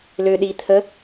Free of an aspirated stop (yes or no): no